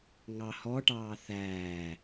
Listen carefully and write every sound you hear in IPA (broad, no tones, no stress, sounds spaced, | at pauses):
ŋ ɑ h ɔ ʈ ɑː θ æː